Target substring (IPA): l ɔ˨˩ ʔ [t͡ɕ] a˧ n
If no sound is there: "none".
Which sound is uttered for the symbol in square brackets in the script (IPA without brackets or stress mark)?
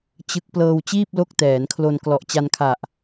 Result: t͡ɕ